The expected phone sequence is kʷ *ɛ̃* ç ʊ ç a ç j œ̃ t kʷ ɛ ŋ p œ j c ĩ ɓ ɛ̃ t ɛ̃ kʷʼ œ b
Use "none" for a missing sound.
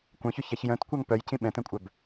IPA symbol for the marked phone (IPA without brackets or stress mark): œ̃